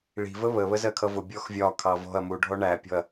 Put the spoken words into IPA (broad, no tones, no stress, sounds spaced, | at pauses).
ɭ i̤ v ə β ə β ə z ɜ kʰ ʌ v ʊ bʲ ɔ x vʲ ɒ kʰ ɑ v ɔ̤ ɐ̯ m u ɖʱ ɔ ɳ æ pʲ ɔ̤ ɐ̯